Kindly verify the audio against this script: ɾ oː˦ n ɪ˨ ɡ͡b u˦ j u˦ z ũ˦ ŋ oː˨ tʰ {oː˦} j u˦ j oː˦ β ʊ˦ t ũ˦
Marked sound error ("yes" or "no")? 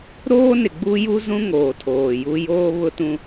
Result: yes